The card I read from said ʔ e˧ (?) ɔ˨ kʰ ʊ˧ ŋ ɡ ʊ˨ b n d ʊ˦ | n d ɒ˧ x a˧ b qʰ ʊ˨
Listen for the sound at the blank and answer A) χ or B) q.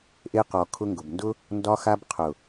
B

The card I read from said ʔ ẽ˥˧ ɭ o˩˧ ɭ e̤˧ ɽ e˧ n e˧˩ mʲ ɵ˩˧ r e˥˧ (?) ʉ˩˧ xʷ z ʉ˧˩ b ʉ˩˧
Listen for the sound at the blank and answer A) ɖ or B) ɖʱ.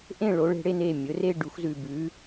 A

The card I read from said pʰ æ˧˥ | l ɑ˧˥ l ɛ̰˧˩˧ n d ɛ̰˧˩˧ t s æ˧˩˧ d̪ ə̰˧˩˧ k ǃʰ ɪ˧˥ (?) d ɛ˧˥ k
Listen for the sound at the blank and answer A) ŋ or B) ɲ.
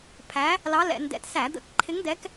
A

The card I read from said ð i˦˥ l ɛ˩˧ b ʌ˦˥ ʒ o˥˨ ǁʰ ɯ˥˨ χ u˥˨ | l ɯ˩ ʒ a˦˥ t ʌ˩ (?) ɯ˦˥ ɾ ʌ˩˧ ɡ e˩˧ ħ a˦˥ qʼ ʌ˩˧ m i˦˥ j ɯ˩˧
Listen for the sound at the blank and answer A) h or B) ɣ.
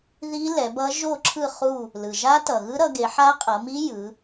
B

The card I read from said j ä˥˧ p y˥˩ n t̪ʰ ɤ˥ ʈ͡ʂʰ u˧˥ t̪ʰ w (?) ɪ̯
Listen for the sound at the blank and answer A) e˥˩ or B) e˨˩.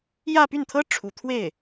A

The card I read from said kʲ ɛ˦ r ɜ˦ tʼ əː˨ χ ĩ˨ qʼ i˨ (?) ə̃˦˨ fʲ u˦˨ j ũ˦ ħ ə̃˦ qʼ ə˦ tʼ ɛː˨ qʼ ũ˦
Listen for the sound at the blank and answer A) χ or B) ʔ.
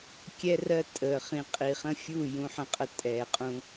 A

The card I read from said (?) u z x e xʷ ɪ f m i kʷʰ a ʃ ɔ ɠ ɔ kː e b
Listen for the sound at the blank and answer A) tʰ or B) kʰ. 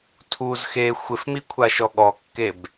A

